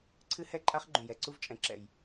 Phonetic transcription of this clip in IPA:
ǀʰ ɨ˦ h ɛ˦ ǃʼ a˦ χ ɡ͡ǃ ũ˨ j ɛ˨ ǀ u˧ v t͡ʃʼ ɛ̃˨ ǁ ɛ̰˨ j

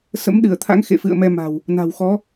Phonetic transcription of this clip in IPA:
s ə̰˧˥ m ɗ ɨ˧˩ ə̯ t̪ʰ a̰˧˥ ŋ x ḛ˧˨ f ɨ̰˧˨ ə̯ m ɛ˧ m a̤˨˩ w | n a̤˨˩ w x ɔ˨˦

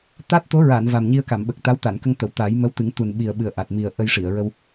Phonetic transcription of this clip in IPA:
t̪ a˦˥ t̚ t̪ o˧˥ ɹ a˨˩˨ n v a˨˩ m ɲ i˧ ə̯ k a˨˩˨ m ɓ ə˨˩ k̚ t̪ a˧˥ w t̪ a˨˩˨ n k ə˧ ŋ t̪ ə˨˩˨ w t̪ a˨˩˦ j m ə˧˥ w t̪ ɨ˨˩˦ ŋ t̪ u˨˩ n ɓ i˨˩ ə̯ ɓ ɨ˨˩ ə̯ ʔ a˨˩ t̚ m i˨˩ ə̯ ʔ ə˧ j ʂ i˨˩˨ ə̯ ɹ ə˧ w

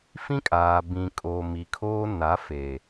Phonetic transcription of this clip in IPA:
f ĩ˦ kʼ aː˨ b ĩ˨ kʼ oː˨ m i˨ kʰ oː˦ n a˨˦ f e˨

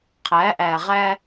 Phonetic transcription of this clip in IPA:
qʰ æ˨˦ ʔ æ˨ ʁ æ˦

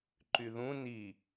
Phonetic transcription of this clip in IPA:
ǃ y ð ũ n i

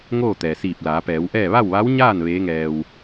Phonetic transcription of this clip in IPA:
ŋ oː˥˨ t̪ ɛː˩ s iː˧˩ p̚ l aː˩˧ p ɛː˩˧ w ʔ ɛː˥˨ ʋ a˥˨ w ʋ a˧˥ w ɲ aː˥˨ n ʋ eː˧˥ ŋ ɛː˧ w

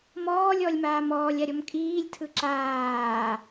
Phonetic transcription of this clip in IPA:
m ɔː lʲ ɔ lʲ m aː m ɔː lʲ a ɾʲ ɔ m kʼ iː lʲ tʰ ɯ ǁ aː

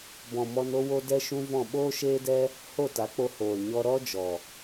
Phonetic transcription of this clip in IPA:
b ɔ̃˨ m ɔ˧ n o˦ w o˦ d ɛ˦ ʃ ũ˦ v ɔ̃˦˨ ɓ oː˦ ʃ eː˦ d ɛ˦ | h o˦˨ t a˨˦ k͡p o˧ h oː˨ l ɲ ɔ˧ ɾ ɔ˦ d͡ʒ ɔ˨

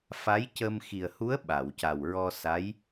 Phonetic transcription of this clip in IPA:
f a˧˥ j c ə˧ m x i˨˩ ə̯ h u˧˥ ə̯ ɓ a˨˩˨ w c a˨˩ w ɹ ɔ˧ s a˧˥ j

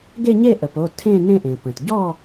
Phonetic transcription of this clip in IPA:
ɡ e˥˨ ɲ e˥˨ ʔ ə˩ p o˩˧˩ tʰ ẽ˥˨ n ẽ˥˨ ʔ ẽ˩ p ə̃˩ t ɟ ɔ˥˨

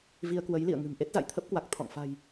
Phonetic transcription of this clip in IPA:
v i˧ ə̯ k w ə˨˦ j l ḭ˧˨ ə̯ ŋ ɨ̤˨˩ m ʔ e˦˥ t̚ z a̰˧˨ j t̪ʰ ə˦˥ p̚ k w a˨˩ k̚ t̪ʰ ɔ̰˧˨ ŋ f a̤˨˩ j

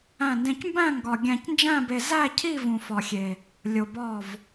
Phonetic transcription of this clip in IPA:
æ̃˥˧ n d ẽ˧ c m b æ̃˥˧ ŋ ɡ ɒ˧ ɡʲ æ̃˧ c n d͡ʒ æ̃˥˧ b e˧ z æ˥˧ cʰ i˥˧ v ũ˧ f ɒ˧ xʲ e˧ | lʲ o˧ b ɒ˥˧ v

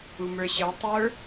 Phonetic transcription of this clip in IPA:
u m ə˞ ɕ ə˞ tˤ ə˞

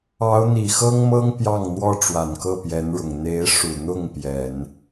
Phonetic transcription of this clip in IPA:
ɑ˧˥ ʊ̯ n̪ i˨˩ x ɤ˥ ŋ m ɤ˥ ŋ p j ɑ˥˩ ŋ n̪ w ɔ˥ ʈ͡ʂ w a˨˩ n k ɤ˥˩ p j ɛ˧˥ n ɻ ʊ˨˩ ŋ n̪ e˧˥ ɪ̯ ʂ u˨˩ n̪ ʊ˥˩ ŋ p j ɛ˨˩˦ n

